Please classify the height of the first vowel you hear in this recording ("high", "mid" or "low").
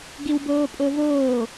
high